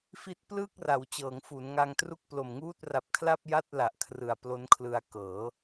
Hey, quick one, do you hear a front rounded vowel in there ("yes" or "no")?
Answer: no